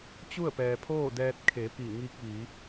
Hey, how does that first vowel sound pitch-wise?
falling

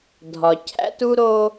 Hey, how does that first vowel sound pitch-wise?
low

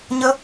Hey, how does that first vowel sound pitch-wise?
high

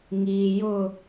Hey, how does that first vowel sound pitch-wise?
low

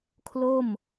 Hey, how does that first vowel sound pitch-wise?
falling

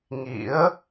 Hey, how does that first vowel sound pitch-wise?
rising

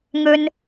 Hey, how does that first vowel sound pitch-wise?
high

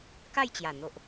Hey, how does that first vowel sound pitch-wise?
falling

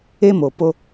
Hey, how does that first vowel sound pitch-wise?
high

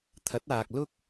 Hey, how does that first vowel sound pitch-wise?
rising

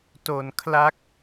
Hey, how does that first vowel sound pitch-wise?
low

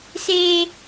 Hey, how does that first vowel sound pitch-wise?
low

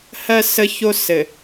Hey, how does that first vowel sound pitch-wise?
low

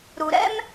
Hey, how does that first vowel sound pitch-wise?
low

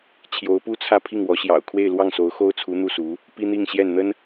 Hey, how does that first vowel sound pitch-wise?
rising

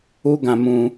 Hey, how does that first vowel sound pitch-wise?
high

